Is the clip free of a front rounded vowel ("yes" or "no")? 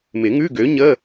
no